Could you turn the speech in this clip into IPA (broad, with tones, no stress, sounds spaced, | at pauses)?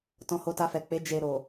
t ɔ̃˧ h o˧ t a˧ f ɛ˨ k͡p e˨˦ d͡ʒ e˧ ɾ o˨